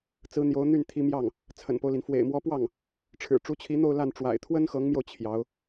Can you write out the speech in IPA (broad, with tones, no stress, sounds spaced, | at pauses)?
t͡s ɹ̩˧˥ n̪ j o˧˥ ʊ̯ n̪ y˥˩ n t̪ʰ i˧˥ m j ɑ˥˩ ŋ | t͡sʰ ə̰˨˩ n p o˦ ʊ̯ l i˩ n f w ḛ˨˩ ɪ̯ m w ɔ˧˥ p w ɑ˥˩ ŋ | ʈ͡ʂʰ ɻ̩˨˩ ʈ͡ʂ u˧˥ t͡ɕʰ i˧˥ n̪ o˥˧ ʊ̯ l a˥˩ n ʈ͡ʂ w a̰˨˩ ɪ̯ t̪ʰ w ə˥ n x ɤ˧˥ ŋ m j o˧ ʊ̯ t͡ɕʰ j ɑ˧˥ ʊ̯